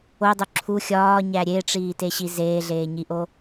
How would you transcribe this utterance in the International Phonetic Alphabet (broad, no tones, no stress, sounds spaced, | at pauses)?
o dˤ o ǁʰ u xʲ ɒː ɲ æ ɾʲ e ʈ͡ʂ iː t e ɕ i z eː ɮ eː ɲ i ʔ o